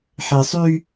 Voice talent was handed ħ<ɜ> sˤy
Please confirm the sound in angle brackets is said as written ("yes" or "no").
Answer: no